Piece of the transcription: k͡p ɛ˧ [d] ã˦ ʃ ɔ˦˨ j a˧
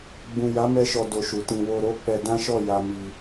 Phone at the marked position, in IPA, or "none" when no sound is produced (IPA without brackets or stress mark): d